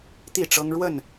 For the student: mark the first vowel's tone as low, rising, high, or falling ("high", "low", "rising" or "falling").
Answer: falling